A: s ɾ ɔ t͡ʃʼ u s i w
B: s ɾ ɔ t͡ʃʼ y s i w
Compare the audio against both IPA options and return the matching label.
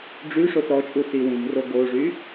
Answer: A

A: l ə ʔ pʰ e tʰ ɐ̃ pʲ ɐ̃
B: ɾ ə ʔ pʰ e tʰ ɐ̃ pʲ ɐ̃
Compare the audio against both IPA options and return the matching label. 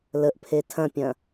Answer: A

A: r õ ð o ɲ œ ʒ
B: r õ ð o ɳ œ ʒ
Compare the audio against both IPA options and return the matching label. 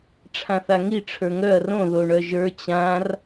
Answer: B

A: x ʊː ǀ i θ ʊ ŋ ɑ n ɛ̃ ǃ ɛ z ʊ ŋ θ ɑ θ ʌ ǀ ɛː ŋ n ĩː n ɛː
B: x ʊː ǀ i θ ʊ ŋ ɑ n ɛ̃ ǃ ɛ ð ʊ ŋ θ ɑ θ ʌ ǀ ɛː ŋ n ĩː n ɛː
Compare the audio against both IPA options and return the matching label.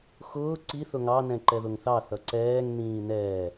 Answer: B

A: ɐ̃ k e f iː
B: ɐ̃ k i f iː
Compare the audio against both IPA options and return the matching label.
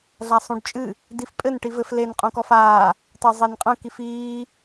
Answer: B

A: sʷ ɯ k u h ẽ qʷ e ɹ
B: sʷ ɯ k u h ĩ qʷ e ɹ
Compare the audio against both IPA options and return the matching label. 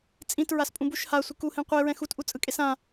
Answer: A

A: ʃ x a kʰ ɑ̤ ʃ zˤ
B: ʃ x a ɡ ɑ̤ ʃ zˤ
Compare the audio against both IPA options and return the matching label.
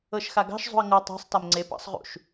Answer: B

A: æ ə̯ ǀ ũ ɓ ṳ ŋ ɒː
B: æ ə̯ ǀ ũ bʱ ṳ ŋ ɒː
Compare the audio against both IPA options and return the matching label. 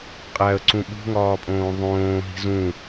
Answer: A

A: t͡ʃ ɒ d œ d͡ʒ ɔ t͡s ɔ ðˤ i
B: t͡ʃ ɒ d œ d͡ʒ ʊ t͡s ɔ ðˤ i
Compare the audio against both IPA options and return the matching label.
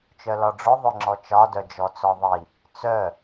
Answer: A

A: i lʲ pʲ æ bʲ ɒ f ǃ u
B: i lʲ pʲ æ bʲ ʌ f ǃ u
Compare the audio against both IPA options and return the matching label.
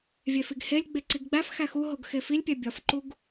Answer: A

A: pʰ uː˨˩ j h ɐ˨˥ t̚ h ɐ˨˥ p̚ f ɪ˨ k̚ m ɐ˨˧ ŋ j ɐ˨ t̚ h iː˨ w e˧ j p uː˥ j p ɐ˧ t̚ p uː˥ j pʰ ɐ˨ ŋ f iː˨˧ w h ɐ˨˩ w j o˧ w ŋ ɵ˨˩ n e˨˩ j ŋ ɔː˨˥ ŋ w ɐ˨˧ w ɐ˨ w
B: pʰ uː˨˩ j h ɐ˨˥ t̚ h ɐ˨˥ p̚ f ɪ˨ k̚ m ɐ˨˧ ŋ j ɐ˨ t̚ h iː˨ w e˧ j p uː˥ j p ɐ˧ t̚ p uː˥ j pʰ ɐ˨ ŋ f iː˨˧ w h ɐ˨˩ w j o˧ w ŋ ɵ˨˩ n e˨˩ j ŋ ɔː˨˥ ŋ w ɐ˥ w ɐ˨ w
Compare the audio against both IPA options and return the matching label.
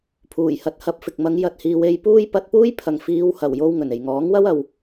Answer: B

